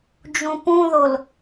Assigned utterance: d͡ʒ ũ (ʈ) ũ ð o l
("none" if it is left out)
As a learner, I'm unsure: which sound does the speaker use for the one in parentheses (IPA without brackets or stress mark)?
p